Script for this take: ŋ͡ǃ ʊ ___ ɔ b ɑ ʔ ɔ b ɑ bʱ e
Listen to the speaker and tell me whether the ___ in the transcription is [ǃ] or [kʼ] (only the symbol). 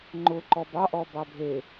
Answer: ǃ